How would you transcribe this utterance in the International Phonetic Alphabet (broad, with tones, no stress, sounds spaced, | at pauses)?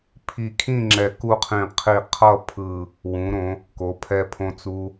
pʰ i˧˩ kʰ ĩ˥˧ ŋ͡ǁ ɛ˧˩ k u˥˧ qʰ ĩ˧˩ qʰ i˧˩ qʰ ʌ˥˧ pʰ ɯ˧˩ | w ũ˩˧ ɾ õ˩˧ | k o˩˧ pʰ ɛ˧ pʰ õ˧ t͡s u˧